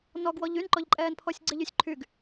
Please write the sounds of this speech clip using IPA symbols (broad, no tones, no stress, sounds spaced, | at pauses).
n ɔ ɡ w ɔ ʎ y n ǃ ɔ ʎ ǃʼ ɛː n pʰ ɔ sʲ ɡ͡ǀ e ʎ y sʲ ǃʰ y ɡ